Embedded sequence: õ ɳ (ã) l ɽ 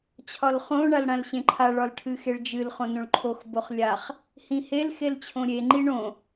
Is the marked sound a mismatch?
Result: yes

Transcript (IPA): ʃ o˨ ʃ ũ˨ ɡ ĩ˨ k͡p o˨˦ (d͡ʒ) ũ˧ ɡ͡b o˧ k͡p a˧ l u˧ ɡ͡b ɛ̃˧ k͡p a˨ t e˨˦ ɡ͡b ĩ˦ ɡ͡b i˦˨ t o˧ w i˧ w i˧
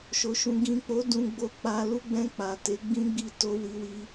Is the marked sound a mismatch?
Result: yes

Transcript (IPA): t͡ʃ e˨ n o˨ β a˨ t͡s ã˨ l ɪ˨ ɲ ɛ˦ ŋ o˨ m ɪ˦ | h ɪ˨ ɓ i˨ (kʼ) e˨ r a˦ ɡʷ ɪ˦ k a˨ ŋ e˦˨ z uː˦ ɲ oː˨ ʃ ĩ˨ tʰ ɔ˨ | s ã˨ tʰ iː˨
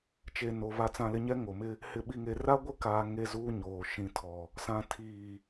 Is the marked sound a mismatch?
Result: yes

